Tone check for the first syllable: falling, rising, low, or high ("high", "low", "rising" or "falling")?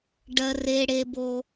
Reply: low